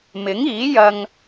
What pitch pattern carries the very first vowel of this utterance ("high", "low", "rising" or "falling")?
rising